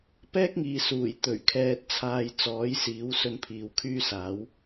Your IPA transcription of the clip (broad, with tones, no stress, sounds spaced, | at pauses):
p ɛː˥ k̚ ŋ iː˨ s uː˨˩ j t̪ ɵ˨˩ ɥ kʰ ɛː˧ t̚ t͡sʰ aː˧ j t͡s ɔː˨˥ j s iː˨˥ w s ɵ˧ n pʰ iː˨ w kʰ yː˥ s aː˨˥ w